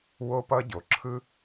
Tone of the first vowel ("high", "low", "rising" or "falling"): high